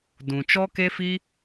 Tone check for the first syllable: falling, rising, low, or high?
low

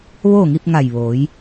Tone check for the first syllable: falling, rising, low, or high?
falling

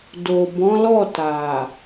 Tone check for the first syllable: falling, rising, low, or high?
low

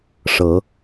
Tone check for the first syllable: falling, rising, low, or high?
rising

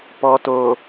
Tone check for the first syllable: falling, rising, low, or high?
low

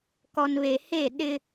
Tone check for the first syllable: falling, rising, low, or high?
low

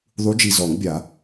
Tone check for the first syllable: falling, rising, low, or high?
rising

